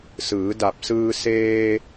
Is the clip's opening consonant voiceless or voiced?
voiceless